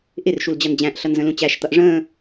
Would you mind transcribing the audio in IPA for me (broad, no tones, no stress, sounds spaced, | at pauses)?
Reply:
ʔ ɪ r ʃ u l d͡ʑ ʌ n d͡ʑ æ̃ ʔ ɬ ʌ n z ə̃ l ũ t͡ɕ æ ʃ t̪ ʌ ʔ ʐ ə̃ː